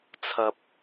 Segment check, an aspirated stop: present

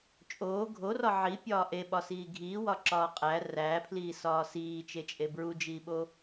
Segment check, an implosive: present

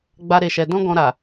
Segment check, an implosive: absent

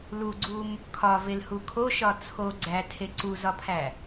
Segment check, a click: present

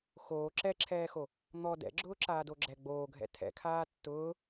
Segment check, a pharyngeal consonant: absent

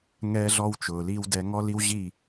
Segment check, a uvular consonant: absent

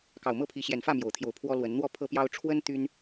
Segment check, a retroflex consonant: present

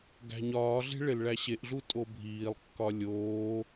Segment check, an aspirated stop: absent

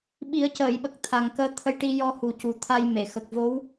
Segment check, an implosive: present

